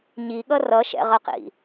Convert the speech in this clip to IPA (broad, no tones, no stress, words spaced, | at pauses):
ɲiɠʌ rʌʃɛ̰ʁʌqḭ